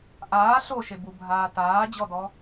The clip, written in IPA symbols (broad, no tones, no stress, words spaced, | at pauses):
ʔaː ɬoʃe bubʱaː taːd͡ʑɔdɔ